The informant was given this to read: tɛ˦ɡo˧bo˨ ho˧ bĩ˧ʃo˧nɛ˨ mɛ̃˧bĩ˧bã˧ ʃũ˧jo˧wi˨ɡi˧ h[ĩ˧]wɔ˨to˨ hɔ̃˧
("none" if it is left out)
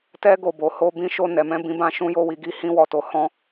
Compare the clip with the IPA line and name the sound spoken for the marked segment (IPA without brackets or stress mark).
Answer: ĩ˧